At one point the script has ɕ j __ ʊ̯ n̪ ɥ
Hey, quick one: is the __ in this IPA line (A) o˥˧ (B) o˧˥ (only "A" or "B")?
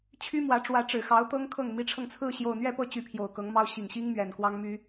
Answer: A